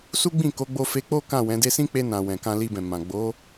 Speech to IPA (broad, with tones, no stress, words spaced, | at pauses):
su˦ɡ͡bĩ˦˨ ko˨˦ ɡ͡bo˧fe˧k͡po˦ kã˦˨wɛ̃˨˦de˦ sĩ˦k͡pe˧nã˨ wɛ̃˨kã˧li˧bɛ̃˨ mã˨ ɡ͡bo˨˦